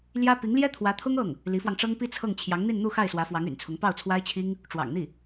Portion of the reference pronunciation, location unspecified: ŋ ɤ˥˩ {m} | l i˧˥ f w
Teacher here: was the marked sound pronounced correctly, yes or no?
no